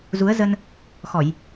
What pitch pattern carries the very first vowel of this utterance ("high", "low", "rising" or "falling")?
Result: rising